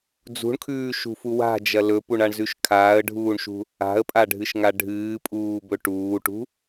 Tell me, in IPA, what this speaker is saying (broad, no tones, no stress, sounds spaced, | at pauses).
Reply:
d͡z ṳ ɳ kʰ ʉː ʃ ṳ f u w a̤ d͡ʒ ɐ l ɵ p u ɳ a ɳ z ʉ ʃ kʰ aː ə̯ ɖʱ uː ɳ ʃ ṳ | a̤ ə̯ pʼ a ɖʱ ɨ ʃ ŋ a ɖʱ ɨː pʼ uː b ɵ ʈ uː ʈ ṳ